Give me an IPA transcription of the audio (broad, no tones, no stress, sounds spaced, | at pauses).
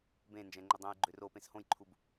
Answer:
b ẽ n d͡ʒ ɛ̃ ŋ͡ǃ ʏ dˤ ɛ̃ j ɡ͡ǃ ø r o p ẽ s h õ j ǃʰ u b